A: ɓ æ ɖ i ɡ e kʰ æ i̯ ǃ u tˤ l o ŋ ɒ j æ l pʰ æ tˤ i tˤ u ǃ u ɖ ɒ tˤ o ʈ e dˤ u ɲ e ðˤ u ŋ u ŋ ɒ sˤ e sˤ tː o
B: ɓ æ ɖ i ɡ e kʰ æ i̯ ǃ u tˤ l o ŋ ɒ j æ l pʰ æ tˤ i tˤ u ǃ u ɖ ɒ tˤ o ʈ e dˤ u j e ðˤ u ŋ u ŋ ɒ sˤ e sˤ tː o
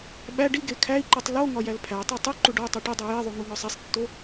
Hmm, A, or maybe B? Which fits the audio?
B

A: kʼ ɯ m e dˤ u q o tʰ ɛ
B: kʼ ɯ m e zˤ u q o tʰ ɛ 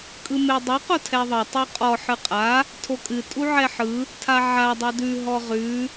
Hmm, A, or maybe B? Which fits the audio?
A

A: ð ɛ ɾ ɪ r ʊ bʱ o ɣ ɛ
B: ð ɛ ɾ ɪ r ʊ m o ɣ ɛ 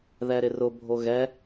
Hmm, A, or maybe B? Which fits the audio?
A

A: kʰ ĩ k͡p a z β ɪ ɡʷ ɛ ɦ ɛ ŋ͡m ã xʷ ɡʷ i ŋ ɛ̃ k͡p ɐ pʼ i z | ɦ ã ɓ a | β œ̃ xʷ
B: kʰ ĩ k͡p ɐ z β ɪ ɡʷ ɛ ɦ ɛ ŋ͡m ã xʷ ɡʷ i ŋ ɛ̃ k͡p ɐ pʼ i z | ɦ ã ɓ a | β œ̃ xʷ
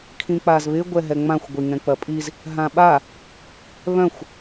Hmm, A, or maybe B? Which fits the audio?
A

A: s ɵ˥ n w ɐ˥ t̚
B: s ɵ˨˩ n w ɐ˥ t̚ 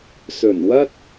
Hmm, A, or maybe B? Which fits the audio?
B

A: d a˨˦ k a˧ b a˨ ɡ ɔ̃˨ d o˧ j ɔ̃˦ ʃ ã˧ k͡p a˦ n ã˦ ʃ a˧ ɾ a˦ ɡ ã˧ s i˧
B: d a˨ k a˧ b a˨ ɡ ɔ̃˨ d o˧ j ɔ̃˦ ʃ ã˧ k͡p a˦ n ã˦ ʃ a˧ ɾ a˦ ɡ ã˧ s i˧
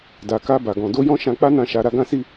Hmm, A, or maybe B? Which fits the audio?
B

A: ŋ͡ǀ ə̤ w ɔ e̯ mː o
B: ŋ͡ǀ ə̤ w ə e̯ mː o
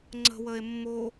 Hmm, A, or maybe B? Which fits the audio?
B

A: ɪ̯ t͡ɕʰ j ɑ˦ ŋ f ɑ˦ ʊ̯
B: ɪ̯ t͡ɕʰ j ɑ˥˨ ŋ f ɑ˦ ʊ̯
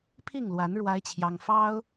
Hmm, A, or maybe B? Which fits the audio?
A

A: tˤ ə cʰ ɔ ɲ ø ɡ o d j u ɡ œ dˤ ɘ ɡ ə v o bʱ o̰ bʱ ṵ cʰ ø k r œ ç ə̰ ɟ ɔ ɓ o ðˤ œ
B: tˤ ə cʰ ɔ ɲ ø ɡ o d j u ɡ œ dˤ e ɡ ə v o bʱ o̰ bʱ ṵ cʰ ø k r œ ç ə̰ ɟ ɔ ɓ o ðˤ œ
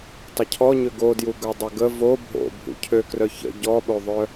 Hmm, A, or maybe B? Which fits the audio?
A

